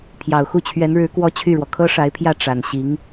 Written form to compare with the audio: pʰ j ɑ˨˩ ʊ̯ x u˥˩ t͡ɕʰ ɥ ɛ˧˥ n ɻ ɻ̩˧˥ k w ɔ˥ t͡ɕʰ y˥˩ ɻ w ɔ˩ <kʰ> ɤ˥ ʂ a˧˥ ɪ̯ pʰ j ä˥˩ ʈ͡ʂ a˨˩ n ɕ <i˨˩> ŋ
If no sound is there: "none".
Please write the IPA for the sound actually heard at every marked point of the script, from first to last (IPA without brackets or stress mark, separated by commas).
kʰ, i˧˥